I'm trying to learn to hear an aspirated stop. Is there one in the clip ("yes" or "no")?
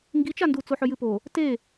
no